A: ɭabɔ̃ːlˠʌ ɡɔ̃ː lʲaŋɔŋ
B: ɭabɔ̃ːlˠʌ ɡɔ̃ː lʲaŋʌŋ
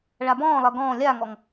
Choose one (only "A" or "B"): A